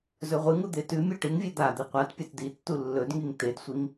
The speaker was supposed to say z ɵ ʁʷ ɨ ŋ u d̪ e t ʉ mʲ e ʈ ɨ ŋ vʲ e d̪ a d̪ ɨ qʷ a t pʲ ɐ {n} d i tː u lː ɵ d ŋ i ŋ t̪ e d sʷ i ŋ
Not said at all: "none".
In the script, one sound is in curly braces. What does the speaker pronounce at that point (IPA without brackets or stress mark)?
t